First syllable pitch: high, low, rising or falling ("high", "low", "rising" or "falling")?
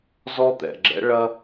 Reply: high